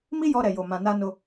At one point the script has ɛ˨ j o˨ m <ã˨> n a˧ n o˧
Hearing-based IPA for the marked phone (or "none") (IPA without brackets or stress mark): ã˨